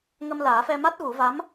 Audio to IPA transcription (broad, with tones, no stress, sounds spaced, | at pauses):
ŋ ə˧ m l aː˨˩˦ f ɛ˧ m a˦˥ t̚ ɣ u˨˩˦ v a˧˥ m